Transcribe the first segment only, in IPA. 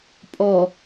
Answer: pʼ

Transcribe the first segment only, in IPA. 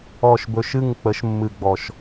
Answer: ɔ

